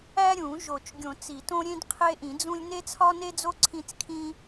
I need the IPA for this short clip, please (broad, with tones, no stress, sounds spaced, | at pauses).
æ˦ ɾʲ ũ˨˩˦ ʒ o˨˩˦ t͡ʃ ɡʲ õ˨˩˦ t͡s i˨˩˦ t õ˦ ɾʲ ẽ˦ d qʰ e˦ ʔ ĩ˨˩˦ d͡z ũ˦ lʲ n e˦ t͡sʰ ɒ˦ n e˦ d͡z o˦ ǀʰ ĩ˦ t͡s kʰ ĩ˦